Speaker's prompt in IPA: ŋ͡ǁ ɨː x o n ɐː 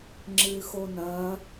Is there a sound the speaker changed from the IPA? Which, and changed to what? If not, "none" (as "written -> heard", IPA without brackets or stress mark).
none